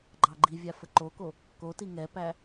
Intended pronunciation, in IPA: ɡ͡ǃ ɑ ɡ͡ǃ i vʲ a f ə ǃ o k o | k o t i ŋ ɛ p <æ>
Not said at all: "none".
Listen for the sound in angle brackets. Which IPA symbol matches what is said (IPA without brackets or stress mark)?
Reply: æ